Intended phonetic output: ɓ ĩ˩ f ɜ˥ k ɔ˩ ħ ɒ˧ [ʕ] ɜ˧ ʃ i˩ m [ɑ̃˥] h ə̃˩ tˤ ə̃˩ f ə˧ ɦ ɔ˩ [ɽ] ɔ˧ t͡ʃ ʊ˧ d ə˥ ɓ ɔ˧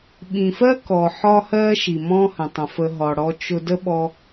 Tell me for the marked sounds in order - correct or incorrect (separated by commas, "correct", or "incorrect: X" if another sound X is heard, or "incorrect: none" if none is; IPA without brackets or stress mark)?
incorrect: h, incorrect: ɔ̃˥, correct